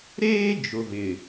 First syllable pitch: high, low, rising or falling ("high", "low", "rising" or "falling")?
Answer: high